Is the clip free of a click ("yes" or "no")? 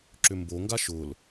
no